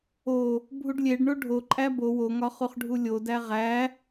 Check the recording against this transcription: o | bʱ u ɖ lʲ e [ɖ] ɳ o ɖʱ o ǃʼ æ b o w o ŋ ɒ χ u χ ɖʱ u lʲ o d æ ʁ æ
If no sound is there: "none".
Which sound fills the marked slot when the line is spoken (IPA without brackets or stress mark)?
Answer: ɖ